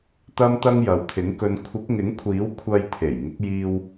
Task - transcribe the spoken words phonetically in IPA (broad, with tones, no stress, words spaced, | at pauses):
t̪ɐ˥mt̪ɐ˥ŋ jɐ˨wt̪ʰɪ˨˥ŋkɵ˧n kʷʰɪ˨˥k̚ŋɪ˨˥ŋkʷʰiː˨˥w kʷʰɐ˧jt̪ʰe˨˩j ŋɪ˨˥k̚jiː˧w